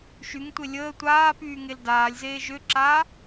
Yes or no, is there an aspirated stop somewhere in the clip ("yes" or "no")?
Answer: no